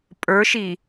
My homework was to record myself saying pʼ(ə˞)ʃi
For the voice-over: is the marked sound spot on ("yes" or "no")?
yes